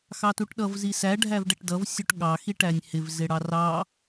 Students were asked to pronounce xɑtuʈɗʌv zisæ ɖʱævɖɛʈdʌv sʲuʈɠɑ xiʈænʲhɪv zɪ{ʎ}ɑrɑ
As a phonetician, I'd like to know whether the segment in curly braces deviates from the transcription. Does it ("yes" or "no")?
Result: yes